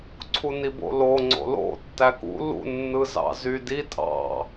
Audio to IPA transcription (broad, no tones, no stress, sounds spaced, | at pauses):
ǀʰ u n i b o̰ l o ŋ͡ǀ o̰ l o̰ tː æ k ṵ l ṵ nː ɯ z ɑ̰ z y d i tʼ ɑ̰